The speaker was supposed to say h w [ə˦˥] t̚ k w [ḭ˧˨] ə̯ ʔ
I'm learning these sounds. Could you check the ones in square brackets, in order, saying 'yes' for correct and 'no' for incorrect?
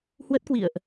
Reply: yes, yes

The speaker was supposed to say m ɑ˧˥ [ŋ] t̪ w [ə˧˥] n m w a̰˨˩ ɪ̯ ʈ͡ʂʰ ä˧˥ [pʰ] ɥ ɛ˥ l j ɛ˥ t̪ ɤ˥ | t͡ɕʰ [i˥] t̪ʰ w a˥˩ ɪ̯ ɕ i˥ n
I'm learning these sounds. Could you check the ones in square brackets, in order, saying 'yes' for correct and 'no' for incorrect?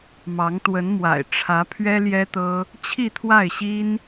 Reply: yes, yes, yes, no

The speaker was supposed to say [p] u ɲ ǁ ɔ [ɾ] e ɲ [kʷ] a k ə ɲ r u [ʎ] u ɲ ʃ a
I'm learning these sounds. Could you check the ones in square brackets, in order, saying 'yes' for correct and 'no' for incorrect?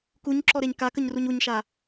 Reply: no, yes, no, no

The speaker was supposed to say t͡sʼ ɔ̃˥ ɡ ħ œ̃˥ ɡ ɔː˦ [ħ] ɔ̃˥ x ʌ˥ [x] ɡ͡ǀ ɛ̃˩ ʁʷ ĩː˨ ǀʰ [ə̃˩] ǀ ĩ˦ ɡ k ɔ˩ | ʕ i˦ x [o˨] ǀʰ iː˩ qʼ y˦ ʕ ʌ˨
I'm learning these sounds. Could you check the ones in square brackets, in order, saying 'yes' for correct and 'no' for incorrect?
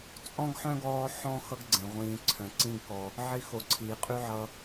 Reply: yes, no, no, yes

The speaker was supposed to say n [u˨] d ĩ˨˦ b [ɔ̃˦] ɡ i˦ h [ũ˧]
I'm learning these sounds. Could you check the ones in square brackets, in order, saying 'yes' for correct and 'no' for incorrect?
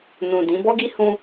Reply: no, no, yes

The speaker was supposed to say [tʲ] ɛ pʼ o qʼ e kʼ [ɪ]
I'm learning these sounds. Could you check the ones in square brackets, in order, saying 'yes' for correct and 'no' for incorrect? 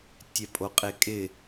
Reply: yes, yes

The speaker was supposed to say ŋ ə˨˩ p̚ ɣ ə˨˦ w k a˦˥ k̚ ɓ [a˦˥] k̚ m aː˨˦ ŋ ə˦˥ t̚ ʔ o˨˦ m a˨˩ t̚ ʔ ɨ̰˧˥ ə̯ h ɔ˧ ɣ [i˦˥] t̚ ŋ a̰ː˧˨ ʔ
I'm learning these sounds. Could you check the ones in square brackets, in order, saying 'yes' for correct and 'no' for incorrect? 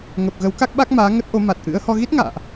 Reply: yes, yes

